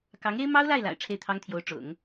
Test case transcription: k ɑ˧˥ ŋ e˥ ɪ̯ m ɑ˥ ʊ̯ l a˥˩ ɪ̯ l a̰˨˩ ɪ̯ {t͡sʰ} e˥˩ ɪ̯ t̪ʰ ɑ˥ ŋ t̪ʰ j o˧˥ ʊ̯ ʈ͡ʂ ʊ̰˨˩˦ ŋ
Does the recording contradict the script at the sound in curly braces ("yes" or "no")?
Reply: yes